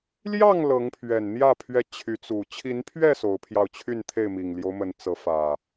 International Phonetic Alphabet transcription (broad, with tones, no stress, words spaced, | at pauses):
ljɑ˥˨ŋ lɤ˨˦ŋpʰɥɛ˨˩nn̪jä˥˨ pʰɥɛ˦ t͡ɕʰy˨˦t͡su˨˩ t͡ɕʰi˨˦npʰɥɛ˥˨ so˨˦ʊ̯pʰjɑ˧ʊ̯t͡ɕʰy˥˨nt̪ʰe˥˨ɪ̯ mi˨˩ŋljo˦ʊ̯mə˨˦n t͡sɤ˨˦fä˨˩